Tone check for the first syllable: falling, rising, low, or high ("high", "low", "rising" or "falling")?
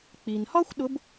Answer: low